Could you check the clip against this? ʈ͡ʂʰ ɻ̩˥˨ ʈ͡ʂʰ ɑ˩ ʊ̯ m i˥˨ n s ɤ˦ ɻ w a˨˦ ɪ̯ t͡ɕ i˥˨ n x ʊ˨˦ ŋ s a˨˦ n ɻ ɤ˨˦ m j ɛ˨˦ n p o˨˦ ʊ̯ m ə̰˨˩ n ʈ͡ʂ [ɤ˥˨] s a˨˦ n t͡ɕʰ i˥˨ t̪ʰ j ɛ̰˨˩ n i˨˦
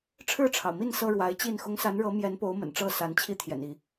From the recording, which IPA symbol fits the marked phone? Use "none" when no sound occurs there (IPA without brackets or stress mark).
ɤ˥˨